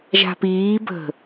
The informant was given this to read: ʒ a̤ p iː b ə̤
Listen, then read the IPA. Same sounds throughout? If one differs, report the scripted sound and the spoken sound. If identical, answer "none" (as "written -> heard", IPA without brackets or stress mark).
none